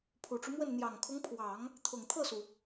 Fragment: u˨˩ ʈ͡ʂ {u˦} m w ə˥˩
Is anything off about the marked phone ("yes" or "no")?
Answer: no